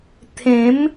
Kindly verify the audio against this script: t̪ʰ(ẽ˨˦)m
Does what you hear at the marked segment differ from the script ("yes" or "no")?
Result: no